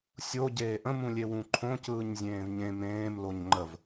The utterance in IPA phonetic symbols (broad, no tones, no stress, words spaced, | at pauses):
sʲo ɟeːʔə̃mũ lʲewũǃʰõ cɯːɲzʲẽːvɲẽ mẽːm loɲŋ͡ǃəv